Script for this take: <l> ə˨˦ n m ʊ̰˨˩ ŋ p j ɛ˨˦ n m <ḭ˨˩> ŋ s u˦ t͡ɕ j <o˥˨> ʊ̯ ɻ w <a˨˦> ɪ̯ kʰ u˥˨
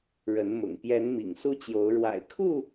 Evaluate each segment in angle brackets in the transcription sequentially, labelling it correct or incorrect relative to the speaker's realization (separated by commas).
incorrect, correct, incorrect, incorrect